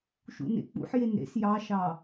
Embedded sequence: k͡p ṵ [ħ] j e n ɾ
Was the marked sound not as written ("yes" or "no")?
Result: no